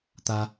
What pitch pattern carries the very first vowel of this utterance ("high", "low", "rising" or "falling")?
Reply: high